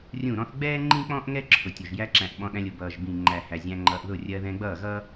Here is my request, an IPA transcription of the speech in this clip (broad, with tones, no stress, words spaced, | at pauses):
rʲũ˦˨ɾɔ̃˦θ ɡ͡bɛː˦ ŋ͡ǃĩ˦k͡pɔ̃˦ʔ ŋɛ˦ǁʰʊ˨tʲʊ˨ʒ jæ˧ǁæ̃˨ʔ ɓɔ̃˧ɗæ̃˧lʲʊ˨ bʌː˨ʒbĩ˨ ŋ͡ǃæ˨hæ˨ zʲæ̃˧ŋ͡ǃʌː˧ʔðʊ˦˨ rʲɜ˧ðɛ̃˧ ɡ͡bʌː˦˨ɣʌ˦